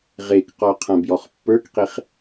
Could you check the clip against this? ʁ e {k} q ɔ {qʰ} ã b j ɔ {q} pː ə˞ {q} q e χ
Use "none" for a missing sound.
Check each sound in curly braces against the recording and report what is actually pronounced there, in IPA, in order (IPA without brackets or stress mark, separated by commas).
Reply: k, qʰ, χ, k